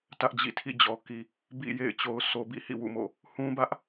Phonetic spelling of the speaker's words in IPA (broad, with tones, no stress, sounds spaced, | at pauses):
t ä˦ ʔ d͡ʑ ḭ˦˨ tʰ ḭ˦˨ d͡ʑ ɔ˨ k i˨ | b ḭ˦˨ j ḛ˦˨ ɪ̯ t͡ɕ o˨ ʊ̯ sʰ o˨ b ḭ˦˨ h ḭ˦˨ w ṵ˦˨ m o̰˦˨ | h ũ˦ b ä˦ ʔ